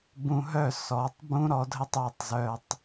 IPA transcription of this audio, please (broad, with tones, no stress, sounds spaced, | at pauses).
b ũ˧ ɦ œ˦˨ s ɔ˨˦ tˤ b ũ˦ ɾ ɔ˧ dʱ ə˦ tˤ œ˧ tˤ z œ˧ tˤ